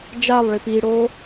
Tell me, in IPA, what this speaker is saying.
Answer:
d͡ʒ a lˠ ɭ i p i ɽ o

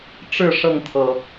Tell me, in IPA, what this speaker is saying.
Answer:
ʈ͡ʂ ɻ̩˥˨ ʂ ɤ˥˨ ŋ t̪ʰ ɤ˨˩

